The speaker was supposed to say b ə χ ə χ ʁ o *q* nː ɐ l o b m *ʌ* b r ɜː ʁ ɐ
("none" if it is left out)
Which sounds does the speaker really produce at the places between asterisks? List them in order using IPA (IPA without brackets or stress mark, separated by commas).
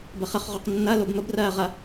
q, ə